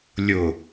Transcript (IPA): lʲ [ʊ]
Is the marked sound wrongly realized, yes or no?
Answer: no